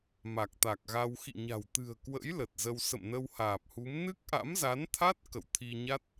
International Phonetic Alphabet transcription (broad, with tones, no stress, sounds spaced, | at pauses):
m a˨˩ k̚ t̪ a˨˩ k̚ ɣ a˧ w x ḭ˧˨ ɲ a̤˨˩ w t̪ ɨ̤˨˩ ə̯ k w ə̰˧˥ j l ə˨˩ t̚ z ə˧ w s ə̰˧˨ m n ə˧ w h aː˨˩ p̚ h u˨˦ m n ɨ˦˥ k̚ ʔ a̰˧˥ m z a˨˦ n t̪ʰ a˦˥ t̚ k ə̰˧˨ w t̪ʰ i˧ ɲ a˦˥ t̚